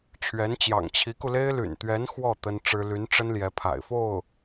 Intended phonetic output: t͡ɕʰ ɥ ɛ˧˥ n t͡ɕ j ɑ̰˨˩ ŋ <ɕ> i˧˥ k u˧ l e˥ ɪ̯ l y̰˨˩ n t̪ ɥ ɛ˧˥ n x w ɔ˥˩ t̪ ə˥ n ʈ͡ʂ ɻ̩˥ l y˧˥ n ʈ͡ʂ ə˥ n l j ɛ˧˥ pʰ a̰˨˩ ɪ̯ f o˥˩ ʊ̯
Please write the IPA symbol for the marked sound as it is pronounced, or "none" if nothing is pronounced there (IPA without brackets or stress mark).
t͡ɕʰ